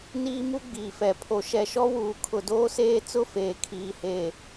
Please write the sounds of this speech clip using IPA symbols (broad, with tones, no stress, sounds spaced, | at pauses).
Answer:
n iː˦ m u˦ ɡ͡b iː˨ f ɛ˨ pʰ o˨ ʃ ɛ˨ ʃ ɔ˦ w uː˨ kʰ ʊ˨ d oː˦ s eː˦ t͡s ʊ˦ f eː˨ kʰ iː˨ h e˨